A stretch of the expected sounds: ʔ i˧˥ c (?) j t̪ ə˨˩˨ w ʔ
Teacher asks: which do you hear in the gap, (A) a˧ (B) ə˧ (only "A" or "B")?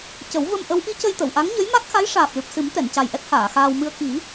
B